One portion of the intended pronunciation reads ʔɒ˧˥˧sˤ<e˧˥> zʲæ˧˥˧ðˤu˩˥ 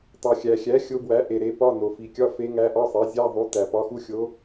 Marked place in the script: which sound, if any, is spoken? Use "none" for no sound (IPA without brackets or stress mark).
e˩˥